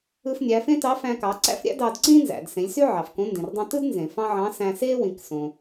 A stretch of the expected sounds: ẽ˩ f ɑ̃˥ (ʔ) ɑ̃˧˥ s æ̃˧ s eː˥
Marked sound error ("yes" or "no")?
yes